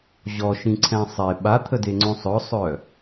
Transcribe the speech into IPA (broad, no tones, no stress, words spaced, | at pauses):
ʑɔʃĩǀʰɛ̃ sˤe ɓat̪ʰədeŋ͡ǀõ sˤœsˤœ